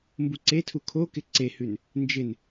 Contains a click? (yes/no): yes